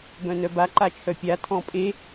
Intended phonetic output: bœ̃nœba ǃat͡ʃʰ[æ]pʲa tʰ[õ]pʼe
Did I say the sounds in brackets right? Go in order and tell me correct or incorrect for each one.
incorrect: œ, incorrect: ɔ̃

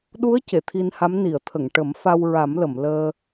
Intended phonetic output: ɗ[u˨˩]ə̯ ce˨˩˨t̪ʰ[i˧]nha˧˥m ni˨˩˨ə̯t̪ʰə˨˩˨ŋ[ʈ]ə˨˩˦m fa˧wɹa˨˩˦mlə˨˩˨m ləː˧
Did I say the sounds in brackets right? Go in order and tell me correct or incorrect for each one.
incorrect: u˧˥, correct, correct

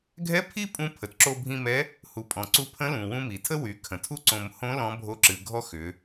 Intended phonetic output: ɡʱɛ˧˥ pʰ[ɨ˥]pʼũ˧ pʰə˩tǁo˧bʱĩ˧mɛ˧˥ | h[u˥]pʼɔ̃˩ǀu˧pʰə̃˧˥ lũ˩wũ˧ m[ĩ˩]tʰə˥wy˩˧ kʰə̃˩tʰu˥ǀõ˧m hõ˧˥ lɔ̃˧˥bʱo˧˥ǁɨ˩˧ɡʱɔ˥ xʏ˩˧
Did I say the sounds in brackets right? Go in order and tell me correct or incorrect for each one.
incorrect: i˥, incorrect: u˩˧, incorrect: i˩

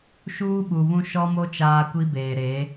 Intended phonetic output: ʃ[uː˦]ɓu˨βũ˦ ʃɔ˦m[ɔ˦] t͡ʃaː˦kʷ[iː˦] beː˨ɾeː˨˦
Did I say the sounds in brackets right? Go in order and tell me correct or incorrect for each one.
correct, incorrect: o˦, incorrect: i˦

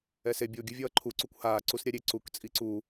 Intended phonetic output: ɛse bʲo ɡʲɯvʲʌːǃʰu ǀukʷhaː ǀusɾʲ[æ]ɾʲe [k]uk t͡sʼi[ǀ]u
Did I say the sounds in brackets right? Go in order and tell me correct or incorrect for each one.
incorrect: a, incorrect: ǀ, correct

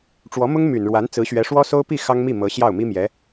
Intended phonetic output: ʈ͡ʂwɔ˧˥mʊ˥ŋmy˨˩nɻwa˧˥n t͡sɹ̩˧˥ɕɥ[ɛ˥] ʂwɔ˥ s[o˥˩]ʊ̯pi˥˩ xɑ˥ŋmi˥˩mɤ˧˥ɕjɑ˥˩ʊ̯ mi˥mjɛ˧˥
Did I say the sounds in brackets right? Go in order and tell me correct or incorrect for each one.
incorrect: ɛ˧˥, incorrect: o˥

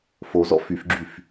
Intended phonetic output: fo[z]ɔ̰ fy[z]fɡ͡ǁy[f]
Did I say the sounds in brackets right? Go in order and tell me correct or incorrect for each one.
correct, incorrect: none, correct

